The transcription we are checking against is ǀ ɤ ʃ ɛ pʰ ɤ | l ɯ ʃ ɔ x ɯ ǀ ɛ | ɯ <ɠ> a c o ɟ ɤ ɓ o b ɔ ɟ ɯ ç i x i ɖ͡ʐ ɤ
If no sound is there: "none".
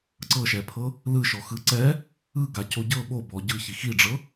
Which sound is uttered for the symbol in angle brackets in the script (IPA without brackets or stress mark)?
ɡ